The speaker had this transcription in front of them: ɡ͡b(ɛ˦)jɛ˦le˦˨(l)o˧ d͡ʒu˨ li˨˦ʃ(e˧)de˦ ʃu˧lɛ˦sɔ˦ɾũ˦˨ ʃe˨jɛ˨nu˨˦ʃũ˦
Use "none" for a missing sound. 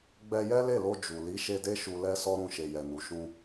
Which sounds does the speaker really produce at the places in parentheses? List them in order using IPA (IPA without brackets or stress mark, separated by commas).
ɛ˧, l, e˧